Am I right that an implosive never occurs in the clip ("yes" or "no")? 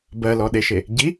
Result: no